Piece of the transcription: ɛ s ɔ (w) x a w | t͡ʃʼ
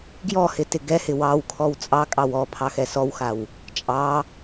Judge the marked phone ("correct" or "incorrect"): correct